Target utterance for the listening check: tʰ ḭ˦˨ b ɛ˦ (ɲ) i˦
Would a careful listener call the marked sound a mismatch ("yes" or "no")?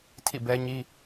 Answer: no